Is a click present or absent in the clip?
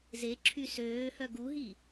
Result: present